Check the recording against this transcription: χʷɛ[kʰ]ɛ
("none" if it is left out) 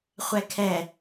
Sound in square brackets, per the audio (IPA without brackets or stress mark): kʰ